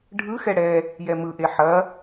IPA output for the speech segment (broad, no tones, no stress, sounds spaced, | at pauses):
ɖʱ ɯ x ɛ ɽ ɛ | j ɛ m ɯ ʔ e ħ ɐ